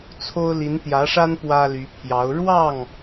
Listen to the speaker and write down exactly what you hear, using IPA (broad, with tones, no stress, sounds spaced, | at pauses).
t͡sʰ o˥ ʊ̯ l i˧˥ n t̪ j ä˧˥ ʂ a˥ n p w ä˥ l y˧˥ pʰ j ɑ˧˥ ʊ̯ ɻ w ɑ˥˩ ŋ